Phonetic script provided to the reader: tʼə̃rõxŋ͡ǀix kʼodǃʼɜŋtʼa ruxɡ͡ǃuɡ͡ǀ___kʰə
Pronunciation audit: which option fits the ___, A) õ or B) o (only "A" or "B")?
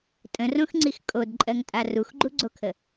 B